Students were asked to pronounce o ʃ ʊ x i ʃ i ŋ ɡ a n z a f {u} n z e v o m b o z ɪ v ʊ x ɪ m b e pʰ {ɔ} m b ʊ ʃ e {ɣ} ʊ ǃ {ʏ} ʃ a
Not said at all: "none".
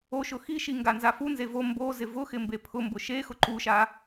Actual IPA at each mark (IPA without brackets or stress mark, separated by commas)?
u, ʊ, x, u